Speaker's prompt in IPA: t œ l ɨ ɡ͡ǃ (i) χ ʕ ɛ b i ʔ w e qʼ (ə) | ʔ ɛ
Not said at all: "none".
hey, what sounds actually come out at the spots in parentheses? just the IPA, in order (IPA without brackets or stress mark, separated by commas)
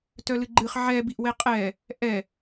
ɨ, ɛ